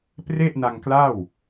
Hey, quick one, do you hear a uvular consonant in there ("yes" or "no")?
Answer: no